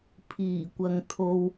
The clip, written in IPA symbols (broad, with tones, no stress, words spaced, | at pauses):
pʰiː˨˩kʷɐ˨ŋ t̪ʰo˧w